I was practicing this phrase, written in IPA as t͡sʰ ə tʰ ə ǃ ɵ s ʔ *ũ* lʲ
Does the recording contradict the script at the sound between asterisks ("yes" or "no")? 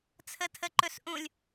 no